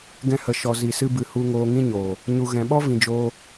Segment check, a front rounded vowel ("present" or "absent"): absent